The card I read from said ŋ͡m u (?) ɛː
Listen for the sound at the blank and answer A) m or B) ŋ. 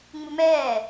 A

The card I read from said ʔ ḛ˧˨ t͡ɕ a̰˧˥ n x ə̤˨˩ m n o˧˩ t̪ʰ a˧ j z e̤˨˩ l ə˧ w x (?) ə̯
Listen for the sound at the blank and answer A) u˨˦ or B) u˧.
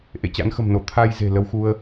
B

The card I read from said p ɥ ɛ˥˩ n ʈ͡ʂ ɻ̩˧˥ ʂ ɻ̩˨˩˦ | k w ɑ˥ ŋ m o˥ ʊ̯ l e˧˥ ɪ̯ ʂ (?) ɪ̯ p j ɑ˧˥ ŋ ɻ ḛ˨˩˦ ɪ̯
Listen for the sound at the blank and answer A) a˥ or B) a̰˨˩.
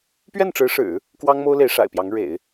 B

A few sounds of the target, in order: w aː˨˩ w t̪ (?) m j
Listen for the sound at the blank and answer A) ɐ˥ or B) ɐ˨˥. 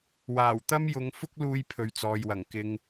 A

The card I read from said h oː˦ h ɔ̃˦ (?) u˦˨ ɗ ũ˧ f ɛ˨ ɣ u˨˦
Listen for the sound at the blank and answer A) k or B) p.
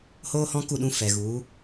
A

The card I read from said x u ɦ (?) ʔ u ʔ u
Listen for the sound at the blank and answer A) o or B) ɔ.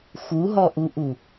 B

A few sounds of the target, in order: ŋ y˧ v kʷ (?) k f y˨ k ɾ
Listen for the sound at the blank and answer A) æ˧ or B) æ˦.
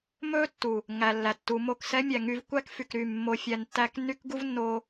B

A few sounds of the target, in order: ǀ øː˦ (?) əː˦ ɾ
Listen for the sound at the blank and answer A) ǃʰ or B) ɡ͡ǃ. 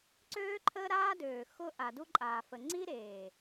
A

